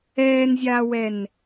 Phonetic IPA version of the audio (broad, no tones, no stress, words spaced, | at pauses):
ɛːnzʲaːwɛn